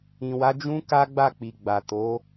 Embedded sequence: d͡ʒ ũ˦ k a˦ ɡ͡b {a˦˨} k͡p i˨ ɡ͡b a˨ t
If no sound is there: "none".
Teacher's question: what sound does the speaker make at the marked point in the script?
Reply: a˦˨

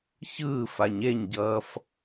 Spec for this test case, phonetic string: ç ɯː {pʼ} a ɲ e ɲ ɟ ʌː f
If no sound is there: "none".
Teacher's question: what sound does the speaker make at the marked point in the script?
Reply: f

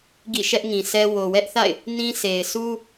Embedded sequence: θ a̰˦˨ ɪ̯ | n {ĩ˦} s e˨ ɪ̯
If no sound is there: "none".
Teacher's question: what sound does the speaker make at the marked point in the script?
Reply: ĩ˦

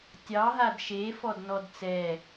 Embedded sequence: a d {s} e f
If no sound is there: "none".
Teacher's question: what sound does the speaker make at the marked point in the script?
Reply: ʃ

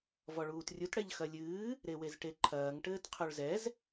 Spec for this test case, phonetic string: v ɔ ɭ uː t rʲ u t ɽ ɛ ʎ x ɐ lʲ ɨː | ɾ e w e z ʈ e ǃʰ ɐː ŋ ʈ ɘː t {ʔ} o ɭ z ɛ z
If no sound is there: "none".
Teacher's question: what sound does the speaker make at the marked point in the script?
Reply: qʰ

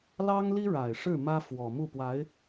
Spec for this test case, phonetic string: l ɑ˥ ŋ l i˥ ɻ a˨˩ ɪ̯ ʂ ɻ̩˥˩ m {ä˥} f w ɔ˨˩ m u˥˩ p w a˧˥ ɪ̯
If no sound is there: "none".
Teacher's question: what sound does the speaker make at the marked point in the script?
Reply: ä˥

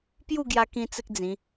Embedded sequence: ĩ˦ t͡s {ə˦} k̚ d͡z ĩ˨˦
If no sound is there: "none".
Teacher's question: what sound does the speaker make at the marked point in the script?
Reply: ə˦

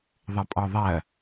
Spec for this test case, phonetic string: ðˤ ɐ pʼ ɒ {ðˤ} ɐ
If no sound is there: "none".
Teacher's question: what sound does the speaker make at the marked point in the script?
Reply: ðˤ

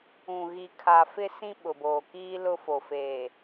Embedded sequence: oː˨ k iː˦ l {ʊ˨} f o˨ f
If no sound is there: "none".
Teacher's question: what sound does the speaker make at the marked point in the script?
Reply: ʊ˦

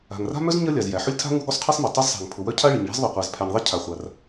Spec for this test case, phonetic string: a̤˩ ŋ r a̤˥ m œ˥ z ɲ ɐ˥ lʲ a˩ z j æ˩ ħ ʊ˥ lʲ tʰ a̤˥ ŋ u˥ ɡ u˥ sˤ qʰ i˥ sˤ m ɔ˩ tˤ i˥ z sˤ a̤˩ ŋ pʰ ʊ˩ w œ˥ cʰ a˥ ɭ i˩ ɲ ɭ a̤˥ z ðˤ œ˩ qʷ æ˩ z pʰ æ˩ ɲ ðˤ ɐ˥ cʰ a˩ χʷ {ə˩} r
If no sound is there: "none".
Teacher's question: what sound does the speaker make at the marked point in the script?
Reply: a˩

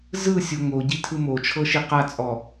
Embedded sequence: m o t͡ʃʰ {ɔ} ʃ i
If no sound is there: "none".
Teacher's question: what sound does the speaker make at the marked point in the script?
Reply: ɤ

